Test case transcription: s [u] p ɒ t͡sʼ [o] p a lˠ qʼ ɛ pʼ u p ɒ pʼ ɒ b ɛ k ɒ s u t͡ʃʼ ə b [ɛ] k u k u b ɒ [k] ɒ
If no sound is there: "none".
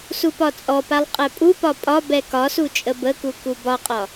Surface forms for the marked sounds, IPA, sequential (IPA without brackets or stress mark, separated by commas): u, ɔ, ə, qʼ